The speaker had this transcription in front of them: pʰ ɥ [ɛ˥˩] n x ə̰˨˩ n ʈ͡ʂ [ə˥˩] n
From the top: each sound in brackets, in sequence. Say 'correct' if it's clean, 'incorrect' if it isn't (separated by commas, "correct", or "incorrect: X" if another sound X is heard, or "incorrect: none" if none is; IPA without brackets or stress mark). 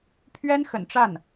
incorrect: ɛ˥, incorrect: a˥˩